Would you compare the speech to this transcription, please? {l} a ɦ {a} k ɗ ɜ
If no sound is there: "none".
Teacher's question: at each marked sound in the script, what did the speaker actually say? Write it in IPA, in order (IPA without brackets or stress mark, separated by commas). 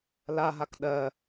l, a